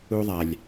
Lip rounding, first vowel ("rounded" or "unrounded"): rounded